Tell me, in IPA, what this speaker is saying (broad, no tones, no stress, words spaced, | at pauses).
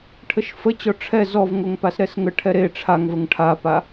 ʈʰəʃfət͡ɕɔ ʈ͡ʂʰɛ zɔvŋoŋpas ɾɛsŋə ʈʰɛɾe ʈ͡ʂʰaŋvəŋ ʈʰapa